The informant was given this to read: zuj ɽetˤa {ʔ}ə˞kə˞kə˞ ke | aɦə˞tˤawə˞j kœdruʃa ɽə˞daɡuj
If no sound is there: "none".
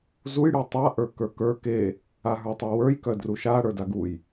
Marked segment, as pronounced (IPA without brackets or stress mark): ʔ